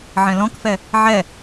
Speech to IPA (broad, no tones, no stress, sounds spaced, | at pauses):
ʕ ɛ̃ l ɔ̃ k f ɛ | ʕ ɛ